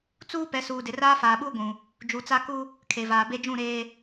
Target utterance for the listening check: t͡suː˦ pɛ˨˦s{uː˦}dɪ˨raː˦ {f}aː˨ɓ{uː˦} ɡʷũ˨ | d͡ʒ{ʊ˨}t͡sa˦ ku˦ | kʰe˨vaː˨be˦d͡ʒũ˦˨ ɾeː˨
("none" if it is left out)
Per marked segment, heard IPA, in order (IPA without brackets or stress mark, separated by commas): uː˨, f, uː˦, u˨